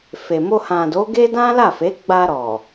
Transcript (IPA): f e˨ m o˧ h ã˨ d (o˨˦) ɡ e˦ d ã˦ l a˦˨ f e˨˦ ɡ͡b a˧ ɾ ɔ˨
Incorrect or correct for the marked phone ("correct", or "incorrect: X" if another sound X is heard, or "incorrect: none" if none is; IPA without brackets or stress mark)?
correct